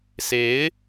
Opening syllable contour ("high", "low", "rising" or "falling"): rising